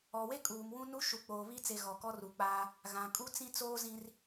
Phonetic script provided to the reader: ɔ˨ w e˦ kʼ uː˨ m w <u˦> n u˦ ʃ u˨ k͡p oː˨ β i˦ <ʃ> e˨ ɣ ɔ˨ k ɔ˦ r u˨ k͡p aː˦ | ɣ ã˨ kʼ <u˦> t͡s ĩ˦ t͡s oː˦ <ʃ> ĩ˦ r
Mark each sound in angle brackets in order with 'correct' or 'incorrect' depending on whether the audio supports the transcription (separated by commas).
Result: incorrect, incorrect, correct, incorrect